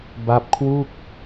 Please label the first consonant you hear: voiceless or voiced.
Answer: voiced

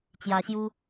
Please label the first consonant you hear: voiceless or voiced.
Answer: voiceless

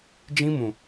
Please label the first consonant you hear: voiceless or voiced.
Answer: voiced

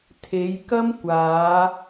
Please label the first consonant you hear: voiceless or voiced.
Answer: voiceless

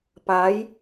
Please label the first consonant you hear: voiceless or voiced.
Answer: voiceless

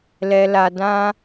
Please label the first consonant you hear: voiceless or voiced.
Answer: voiced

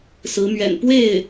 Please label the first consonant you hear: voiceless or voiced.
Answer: voiceless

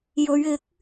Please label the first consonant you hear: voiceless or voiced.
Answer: voiced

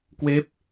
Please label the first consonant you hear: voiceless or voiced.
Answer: voiceless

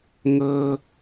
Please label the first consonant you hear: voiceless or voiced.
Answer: voiced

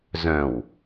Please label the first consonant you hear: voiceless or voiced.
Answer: voiced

